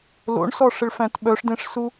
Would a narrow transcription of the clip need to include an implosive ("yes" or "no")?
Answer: yes